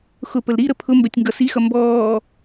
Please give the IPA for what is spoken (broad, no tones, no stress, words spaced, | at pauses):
xʊpəl ɾiɾə pʰʊmbɛtʲŋɡʌ sixʌ mbɔː